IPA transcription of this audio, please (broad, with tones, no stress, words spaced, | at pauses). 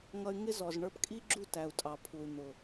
ŋʌ˧y̯ŋɪ˦zɔ˨z ɳə˞˧pkʼi˦ɡ͡ǁu˦˨ tæ˨u̯tʼɑ˨ pʰu˨y̯n̪ʊ˨